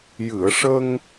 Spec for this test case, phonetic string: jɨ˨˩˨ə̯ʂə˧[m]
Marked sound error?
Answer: yes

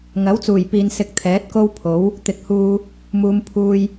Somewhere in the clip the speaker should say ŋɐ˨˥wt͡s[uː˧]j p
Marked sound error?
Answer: yes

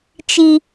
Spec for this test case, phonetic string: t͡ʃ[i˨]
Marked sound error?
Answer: no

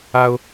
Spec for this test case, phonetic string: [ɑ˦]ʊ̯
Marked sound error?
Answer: yes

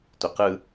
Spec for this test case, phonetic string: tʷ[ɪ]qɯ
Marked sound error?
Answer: no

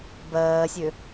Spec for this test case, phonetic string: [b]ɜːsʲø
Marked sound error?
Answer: no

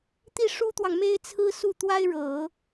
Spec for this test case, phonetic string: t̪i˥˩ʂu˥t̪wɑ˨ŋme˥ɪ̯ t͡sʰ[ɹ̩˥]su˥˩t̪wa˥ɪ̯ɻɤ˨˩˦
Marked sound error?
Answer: no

